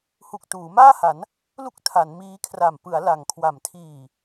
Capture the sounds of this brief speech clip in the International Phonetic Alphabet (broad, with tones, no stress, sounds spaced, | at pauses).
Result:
h u˨˩ k̚ t uː˩˦ m aː˥˩ h a˩˦ n | l u˥˩ k̚ tʰ a˩˦ n m iː˦˥ kʰ r a˨˩ m p ɯ˩˦ a̯ l a˩˦ ŋ kʰ w a˩˦ m tʰ iː˨˩